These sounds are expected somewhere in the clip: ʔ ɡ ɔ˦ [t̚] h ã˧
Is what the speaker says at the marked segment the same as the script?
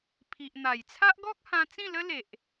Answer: no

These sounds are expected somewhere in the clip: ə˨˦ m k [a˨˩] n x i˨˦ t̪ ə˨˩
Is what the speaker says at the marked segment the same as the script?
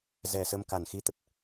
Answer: yes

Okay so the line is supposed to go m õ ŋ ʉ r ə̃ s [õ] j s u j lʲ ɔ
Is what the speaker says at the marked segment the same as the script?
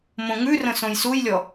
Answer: yes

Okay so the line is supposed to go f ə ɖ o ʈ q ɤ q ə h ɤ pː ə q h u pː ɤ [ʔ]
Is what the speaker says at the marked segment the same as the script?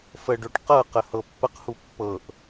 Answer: yes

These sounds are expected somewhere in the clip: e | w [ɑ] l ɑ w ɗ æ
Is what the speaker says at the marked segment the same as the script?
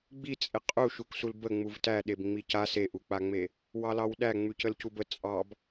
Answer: yes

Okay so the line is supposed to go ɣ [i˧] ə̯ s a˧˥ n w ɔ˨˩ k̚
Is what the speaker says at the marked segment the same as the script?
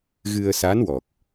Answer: no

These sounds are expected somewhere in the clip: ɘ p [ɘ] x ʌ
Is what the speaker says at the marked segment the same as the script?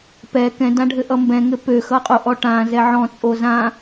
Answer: no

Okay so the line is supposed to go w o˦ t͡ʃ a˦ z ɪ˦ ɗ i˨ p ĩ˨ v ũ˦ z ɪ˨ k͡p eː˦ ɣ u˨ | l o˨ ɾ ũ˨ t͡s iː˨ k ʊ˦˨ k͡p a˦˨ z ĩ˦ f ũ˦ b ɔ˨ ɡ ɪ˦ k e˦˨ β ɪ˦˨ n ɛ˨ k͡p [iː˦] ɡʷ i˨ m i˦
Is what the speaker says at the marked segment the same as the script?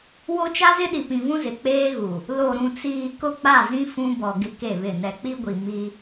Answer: no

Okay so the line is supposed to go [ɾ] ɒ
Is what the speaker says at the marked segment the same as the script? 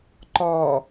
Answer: no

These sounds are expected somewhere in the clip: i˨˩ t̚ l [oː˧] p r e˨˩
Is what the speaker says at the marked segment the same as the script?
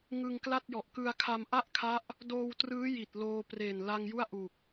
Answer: yes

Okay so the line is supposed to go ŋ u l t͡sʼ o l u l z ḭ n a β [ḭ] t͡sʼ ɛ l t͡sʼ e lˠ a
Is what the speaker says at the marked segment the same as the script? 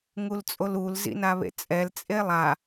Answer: no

